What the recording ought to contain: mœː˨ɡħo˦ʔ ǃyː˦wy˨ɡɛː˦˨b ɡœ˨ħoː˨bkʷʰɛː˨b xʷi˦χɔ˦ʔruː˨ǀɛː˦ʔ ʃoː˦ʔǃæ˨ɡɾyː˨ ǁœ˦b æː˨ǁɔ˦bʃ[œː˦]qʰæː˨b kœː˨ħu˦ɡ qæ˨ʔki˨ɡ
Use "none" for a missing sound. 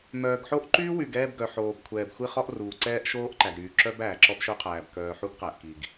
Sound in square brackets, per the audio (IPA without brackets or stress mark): œ˦